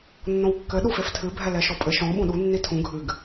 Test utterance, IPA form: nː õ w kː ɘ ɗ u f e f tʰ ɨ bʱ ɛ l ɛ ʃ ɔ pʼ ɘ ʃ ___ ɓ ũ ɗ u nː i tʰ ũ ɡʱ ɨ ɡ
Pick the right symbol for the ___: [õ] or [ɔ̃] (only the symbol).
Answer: ɔ̃